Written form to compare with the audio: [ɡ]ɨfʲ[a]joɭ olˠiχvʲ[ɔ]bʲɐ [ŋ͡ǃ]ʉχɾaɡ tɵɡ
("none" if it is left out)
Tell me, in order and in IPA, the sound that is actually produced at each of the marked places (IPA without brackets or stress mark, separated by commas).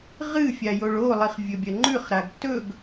ʁ, a, ɵ, ŋ͡ǃ